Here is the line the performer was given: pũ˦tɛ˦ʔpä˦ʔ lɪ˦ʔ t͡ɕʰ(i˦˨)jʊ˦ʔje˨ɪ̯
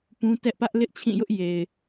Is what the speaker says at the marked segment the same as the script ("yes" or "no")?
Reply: no